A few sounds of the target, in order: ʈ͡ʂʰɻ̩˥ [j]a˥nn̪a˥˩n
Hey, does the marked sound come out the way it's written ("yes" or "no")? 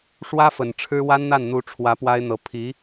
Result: no